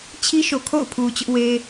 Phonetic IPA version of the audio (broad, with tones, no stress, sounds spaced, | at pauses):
t͡ɕʰ i˦ ʃ o˨ kʰ o̰˦˨ ʊ̯ pʰ u˨ t͡ɕ ʊ˦ ʔ w e˦